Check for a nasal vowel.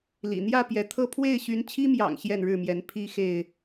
absent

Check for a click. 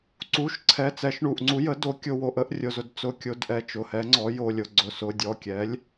present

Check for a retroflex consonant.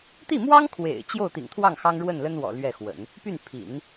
present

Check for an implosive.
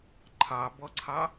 absent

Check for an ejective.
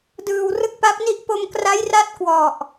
absent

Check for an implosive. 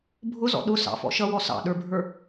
present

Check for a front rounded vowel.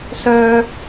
present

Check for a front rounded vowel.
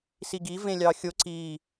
absent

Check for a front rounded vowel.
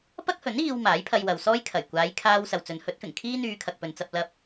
present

